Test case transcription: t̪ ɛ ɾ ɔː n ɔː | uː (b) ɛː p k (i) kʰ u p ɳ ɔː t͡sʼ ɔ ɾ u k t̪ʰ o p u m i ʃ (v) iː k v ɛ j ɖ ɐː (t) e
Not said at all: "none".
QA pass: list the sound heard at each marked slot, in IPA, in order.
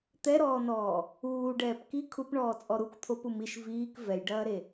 ɖ, i, v, ɾ

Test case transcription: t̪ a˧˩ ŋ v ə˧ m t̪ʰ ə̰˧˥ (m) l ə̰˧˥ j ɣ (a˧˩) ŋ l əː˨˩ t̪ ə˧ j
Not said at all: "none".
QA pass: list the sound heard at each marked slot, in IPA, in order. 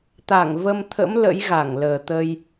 m, a˧˩

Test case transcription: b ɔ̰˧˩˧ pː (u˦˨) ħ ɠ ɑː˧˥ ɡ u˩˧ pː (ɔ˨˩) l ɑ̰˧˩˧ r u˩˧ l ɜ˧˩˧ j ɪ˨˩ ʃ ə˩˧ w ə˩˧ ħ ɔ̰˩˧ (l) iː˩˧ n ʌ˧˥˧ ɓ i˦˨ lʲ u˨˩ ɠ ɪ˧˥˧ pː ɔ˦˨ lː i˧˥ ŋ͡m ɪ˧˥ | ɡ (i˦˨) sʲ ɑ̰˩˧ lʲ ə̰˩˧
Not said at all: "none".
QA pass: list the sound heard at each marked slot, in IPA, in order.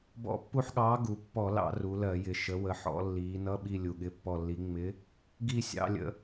u˦˨, ɔ˧˩˧, lː, i˦˨

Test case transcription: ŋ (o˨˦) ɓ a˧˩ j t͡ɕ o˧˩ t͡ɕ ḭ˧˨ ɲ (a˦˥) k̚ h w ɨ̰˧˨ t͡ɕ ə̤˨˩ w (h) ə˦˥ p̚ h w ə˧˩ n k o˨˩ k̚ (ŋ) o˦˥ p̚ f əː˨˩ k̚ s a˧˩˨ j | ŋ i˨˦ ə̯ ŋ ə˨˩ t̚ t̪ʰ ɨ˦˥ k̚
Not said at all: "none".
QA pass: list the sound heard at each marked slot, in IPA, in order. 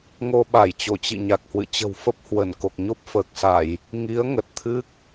o˧, a˨˩, f, ɲ

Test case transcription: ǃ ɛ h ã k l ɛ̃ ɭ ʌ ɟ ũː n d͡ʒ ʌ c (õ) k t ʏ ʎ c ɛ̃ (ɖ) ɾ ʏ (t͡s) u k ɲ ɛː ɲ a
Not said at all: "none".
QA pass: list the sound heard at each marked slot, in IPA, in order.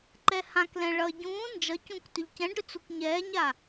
ũ, ɖ, t͡s

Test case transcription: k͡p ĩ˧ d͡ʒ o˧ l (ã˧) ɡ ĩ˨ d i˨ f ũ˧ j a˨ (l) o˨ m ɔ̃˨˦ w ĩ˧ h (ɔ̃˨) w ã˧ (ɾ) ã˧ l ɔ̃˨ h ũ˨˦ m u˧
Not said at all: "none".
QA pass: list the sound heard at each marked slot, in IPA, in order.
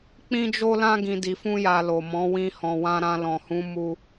ã˧, l, ɔ̃˨, ɾ

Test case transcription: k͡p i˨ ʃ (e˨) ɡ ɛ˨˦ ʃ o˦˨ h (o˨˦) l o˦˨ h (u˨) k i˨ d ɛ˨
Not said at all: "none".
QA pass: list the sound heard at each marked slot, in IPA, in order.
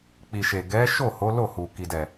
e˨, o˨˦, u˨

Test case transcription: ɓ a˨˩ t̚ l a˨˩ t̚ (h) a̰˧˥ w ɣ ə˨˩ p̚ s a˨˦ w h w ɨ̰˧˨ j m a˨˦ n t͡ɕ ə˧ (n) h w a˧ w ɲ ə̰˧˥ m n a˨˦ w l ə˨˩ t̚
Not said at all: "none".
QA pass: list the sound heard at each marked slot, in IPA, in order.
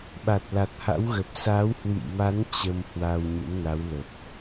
h, m

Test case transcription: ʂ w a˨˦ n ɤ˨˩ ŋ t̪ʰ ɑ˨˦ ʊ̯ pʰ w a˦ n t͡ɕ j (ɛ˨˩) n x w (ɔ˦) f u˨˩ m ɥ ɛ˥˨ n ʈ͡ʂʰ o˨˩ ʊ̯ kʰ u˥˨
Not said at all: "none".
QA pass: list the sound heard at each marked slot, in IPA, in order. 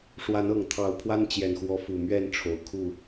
ɛ˨˩, ɔ˨˦

